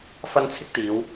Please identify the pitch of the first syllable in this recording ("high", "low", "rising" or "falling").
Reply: high